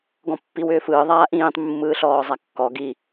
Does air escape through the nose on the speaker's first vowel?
yes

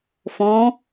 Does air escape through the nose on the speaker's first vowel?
yes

